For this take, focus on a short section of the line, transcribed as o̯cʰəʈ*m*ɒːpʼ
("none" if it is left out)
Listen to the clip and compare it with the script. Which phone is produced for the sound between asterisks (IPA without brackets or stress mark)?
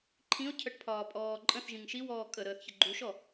pʰ